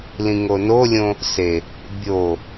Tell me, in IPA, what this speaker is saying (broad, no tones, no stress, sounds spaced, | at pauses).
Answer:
l ĩ ŋ o n o lʲ õ | s e | bʲ o